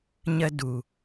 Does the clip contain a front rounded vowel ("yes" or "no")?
no